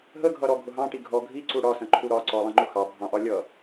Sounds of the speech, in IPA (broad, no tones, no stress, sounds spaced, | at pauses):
ɦ ə ɡʱ ʌ ɾ ɔ ɡʱ ʊ ɦ ɑ̃ ʈ i ɡʱ ɔ ɡʱ i ǀ u ɽ ɒ s ə̃ ǃʰ u ɾ ɒ ǀ ɔ lˠ ə̃ ŋ͡ǃ ʊ x ɑ bʱ ɑ̃ ʔ ɒ lʲ ʌ